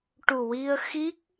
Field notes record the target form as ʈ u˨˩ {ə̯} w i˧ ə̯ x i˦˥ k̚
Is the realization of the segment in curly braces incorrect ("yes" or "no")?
yes